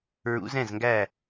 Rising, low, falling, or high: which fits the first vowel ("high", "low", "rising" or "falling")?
rising